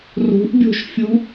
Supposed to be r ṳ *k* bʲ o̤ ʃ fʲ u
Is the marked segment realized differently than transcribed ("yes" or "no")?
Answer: yes